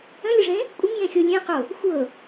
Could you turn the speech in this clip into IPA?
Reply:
ə̃ lʲ ə ʐ ẽ | kʷʼ ə ŋ j ẽ xʲ o lʲ ẽ q o | xʷ ɤ

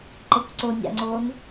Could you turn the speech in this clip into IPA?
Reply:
ǃ ɤ kʷ ǀ o nʲ a̰ ŋ͡ǀ o n

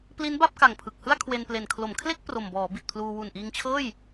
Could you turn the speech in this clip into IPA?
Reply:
p l i˦˥ n b a˥˩ p̚ k a˨˩ ŋ pʰ ɯ˨˩ k̚ h ɯ˥˩ a̯ kʰ w e˧ n p l e˨˩ n kʰ l o˩˦ m kʰ l e˥˩ k̚ p r o˨˩ m b ɔː˩˦ b i˨˩ t̚ pʰ l uː˧ w u˨˩ n ʔ iː˧ ŋ t͡ɕʰ ɤː˥˩ j

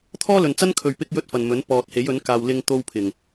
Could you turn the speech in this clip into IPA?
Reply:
t̪ʰ ɔː˥ l ɵ˨ n t͡s ɐ˥ n kʰ ɵ˨ ɥ p ɪ˥ k̚ j ɵ˥ t̚ f ɐ˨ n m ɵ˨˥ n p ɔː˨ t̚ h e˨˥ j ɵ˨˥ n k aː˧ w l ɪ˧ ŋ t̪ o˧ w pʰ ɪ˨˩ ŋ

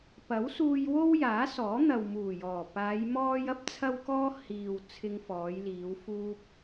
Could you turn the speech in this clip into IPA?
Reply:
p ɐ˨˥ w s uː˧ j w o˥ w j aː˨˥ s ɔː˨˥ n̪ ɐ˨ w m uː˨˩ j ɔː˨˩ p aː˨˧ j m ɔː˥ j ɐ˥ p̚ t͡sʰ ɐ˧ w k ɔː˧ h iː˨ w t͡sʰ ɪ˧ ŋ f ɔː˨˧ j l iː˨˧ w f uː˧ p̚

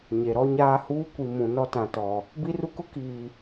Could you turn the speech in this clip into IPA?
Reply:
ɲ e˨ ɾ ɔ˦ ɲ aː˦ h uː˦ kʷ i˨ m ũ˨ n ɔ˦ t ã˨ t ɔ˨ | b i˦ r u˦ k ʊ˦ k iː˨

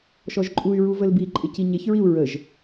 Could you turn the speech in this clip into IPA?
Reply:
ʃ ɔ ʒ ǃʼ u y̯ ɹ u v ə l b i ǃʼ ɪ c i ɲ e ç ɹ i u̯ ɹ ə ʒ

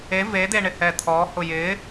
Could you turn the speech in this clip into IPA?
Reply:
e v e d̪ e ɳ ɪ h ɛ t̪ʰ ɔ h ʊ j ɪ

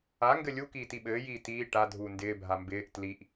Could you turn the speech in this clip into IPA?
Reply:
a ŋ ɡ ɘ lʲ u k iː t i ɓ ɘː j iː t iː ʈ a dʱ uː n d ɪː bʱ a m b ɪː ʔ t l i ʔ

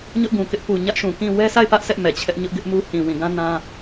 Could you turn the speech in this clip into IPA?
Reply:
ɲ ʊ˦ ʔ ɡ ũ˨ k ɪ˦ ʔ p u˨ ɲ ä˦ ʔ ʃ ũ˨ k ĩ˦˨ w ɛ˦ s a˦˨ ɪ̯ p ä˦ ʔ s ɛ˦ ʔ m ɛ˨ t͡ɕʰ ɛ˦ ʔ ɲ ʊ˦ ʔ ɡ ɪ˦ ʔ m u˦ h ĩ˨ w ĩ˨ ɡ ã˦ n ã˦

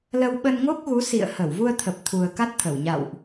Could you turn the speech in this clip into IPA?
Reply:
l ə˧ w ɓ ə˧ n ŋ o˦˥ k̚ ɣ u˨˦ s ḭ˧˨ ə̯ h ə˧˩ w v u˧ ə̯ t̪ʰ ə˨˩ p̚ t̪ʰ u˨˩ ə̯ k a˦˥ t̚ t̪ʰ ə˧˩ w ɲ a̰˧˨ w ʔ

